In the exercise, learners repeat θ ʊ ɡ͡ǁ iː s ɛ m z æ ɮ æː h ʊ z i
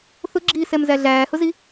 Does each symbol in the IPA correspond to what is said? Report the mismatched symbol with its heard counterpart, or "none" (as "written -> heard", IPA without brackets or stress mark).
none